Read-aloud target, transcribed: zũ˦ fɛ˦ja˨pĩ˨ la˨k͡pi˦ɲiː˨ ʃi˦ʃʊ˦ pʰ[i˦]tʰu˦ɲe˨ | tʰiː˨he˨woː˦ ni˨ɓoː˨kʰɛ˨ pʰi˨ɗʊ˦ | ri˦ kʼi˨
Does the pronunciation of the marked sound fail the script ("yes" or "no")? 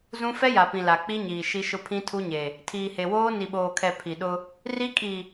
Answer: yes